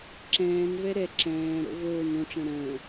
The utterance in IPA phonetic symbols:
ǁ ɛ̃ː n v ɛ ɾ ɛ ǁ ɛ̃ː ɾ o̰ v oː n õ ʈ͡ʂ ɛ̃ ɾ ə̃ː

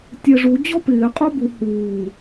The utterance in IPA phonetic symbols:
tʲ ɛ ʐ u d͡ʑ ɔ p ɪː qʼ o b u h uː

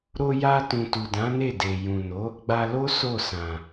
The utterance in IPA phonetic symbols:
ɾ o˧ j a˧ t ũ˨ t u˨ d ã˨˦ n e˦˨ d e˨ j ũ˨ n o˨˦ | ɡ͡b a˧ l o˦ s o˦˨ s ã˨

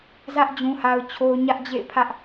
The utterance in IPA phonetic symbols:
z ä˦ ʔ d͡ʑ ũ˦ h a˦ ʊ̯ t͡ɕʰ o˦ ʊ̯ ɲ ä˦ ʔ d͡ʑ ḛ˦˨ ɪ̯ pʰ ä˦ ʔ

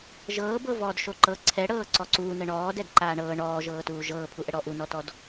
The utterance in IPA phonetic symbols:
ʒ ɤː b ɤ v ɔː d ʃ o ǃ ɤ ǀʰ ɛ ɽ ɤː ǀ ɔ ǀ uː n ə ɳ ɔː d ɛ d ǃ aː ɳ ɤː ɳ ɔː ʒ ɤː t uː ʒ ɤː pʰ u ʔ ə ɽ ɔ ʔ u n ɔ t ɔ d

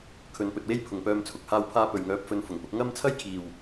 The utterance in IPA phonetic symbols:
kʰ ɵ˨˧ n p ɵ˨ t̚ w e˥ j pʰ ʊ˨ ŋ p œː˧ m t͡sʰ ʊ˨ k̚ h aː˧ w pʰ aː˧ p ɵ˨ ɥ ŋ œː˨˥ p̚ f ɵ˨˧ n f ʊ˨˩ ŋ p ʊ˧ k̚ ŋ ɐ˥ m t͡sʰ ɐ˥ j kʰ iː˨ w

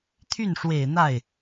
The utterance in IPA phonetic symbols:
t̪ʰ y˥˩ n ʂ w e˨˩ ɪ̯ n̪ a˥˩ ɪ̯

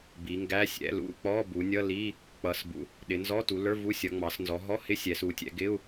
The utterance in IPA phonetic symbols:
b i˩˧ ŋ ɡ æ˧˥˧ sʲ ɛ̰˧˥˧ l ṵ˧˥˧ k͡p ɔ˧˥˧ b u˩˧ nʲ ʌ˧˥˧ l i˧˥˧ | k͡p ʌ˩˧ s b ṵ˩˧ | ɗ ɪ˩˧ n z ɔ˧˥˧ t u˩˧ l ə˞˧˥˧ v u˧˥˧ sʲ ʌ˩˧ ŋ͡m ɑ˩˧ s n z ɔ˩˧ ɦ ɔ˧˥˧ h ɪ˧˥˧ sʲ ɛ˩˧ s u˩˧ tʲ ɛ̰˩˧ ɡ ɪ˧˥˧ u̯

